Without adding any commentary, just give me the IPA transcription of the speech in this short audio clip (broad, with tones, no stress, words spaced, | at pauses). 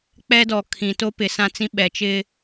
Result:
k͡pɛ˦dɔ˨ kʰĩ˨to˦ pɪ˨sã˦t͡sĩ˦ ɓɛ˨t͡ʃɪ˦